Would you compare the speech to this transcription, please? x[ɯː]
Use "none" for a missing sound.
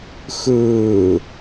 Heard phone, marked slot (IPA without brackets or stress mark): ɯː